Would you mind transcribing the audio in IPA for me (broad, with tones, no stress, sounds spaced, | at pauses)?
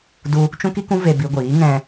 d u˧ | t͡ʃ ũ˦ k i˦ k ũ˦ v e˧ b i˧ ɡʷ iː˨˦ ŋ ɛ̃˧